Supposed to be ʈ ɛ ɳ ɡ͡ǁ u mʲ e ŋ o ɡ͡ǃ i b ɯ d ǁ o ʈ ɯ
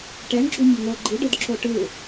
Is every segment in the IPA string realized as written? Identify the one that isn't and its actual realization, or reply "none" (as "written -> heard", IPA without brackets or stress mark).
b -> ɖ